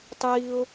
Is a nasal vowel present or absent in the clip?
absent